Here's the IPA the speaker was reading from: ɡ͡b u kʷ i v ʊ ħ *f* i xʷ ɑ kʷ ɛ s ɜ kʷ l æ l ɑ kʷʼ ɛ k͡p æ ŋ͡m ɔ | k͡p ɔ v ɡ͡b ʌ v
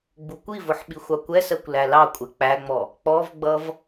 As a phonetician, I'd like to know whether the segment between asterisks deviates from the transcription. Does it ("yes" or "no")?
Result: yes